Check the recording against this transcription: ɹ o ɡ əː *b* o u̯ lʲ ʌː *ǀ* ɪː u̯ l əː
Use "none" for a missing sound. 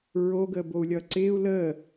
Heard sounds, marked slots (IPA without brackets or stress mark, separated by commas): b, ǀ